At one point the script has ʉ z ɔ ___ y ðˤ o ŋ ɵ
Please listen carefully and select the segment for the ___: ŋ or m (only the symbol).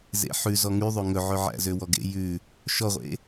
ŋ